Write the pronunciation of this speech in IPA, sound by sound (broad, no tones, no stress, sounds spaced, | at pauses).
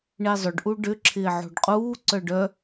ɳ e zˤ ʏ ɖ ʔ u ɖ ʏ ǁʰ ɪː ʕ o̤ ɖ qʼ uː ǀ œ ɖ œ